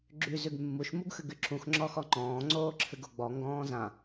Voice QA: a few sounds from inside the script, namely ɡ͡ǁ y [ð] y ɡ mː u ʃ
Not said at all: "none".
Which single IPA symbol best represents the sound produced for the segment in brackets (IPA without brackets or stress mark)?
z